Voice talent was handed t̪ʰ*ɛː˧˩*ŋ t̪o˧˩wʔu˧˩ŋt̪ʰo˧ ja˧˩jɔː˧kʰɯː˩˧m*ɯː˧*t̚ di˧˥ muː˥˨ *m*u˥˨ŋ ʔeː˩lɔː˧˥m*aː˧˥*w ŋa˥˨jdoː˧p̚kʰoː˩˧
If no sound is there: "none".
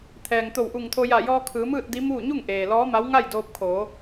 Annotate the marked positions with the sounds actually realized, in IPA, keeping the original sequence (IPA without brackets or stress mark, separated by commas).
ɛː˩, ɯː˥˨, ɲ, a˧˥